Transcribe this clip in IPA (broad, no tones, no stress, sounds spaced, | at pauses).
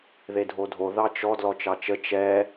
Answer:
ð e dʱ o dʱ o ð ɑ t͡ʃ ɔ d l ɔ t͡ʃ ɑ t͡ʃ ə t͡ʃ ɛ